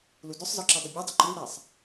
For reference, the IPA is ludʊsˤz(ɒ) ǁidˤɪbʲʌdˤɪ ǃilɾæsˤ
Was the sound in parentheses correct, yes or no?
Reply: yes